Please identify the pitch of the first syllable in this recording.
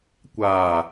low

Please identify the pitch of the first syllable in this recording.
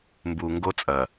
low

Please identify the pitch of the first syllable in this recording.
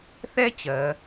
high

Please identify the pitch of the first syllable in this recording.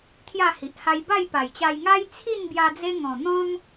falling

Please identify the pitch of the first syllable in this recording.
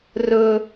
high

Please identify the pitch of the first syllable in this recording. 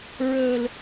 high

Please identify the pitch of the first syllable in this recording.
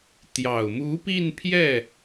low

